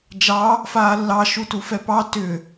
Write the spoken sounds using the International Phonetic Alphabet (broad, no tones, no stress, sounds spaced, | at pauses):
d͡ʒ ɑ | f aː lː ɑ ʃ u t u f ɛ p ɑ t ʏ